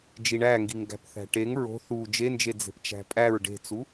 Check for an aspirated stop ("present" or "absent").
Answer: absent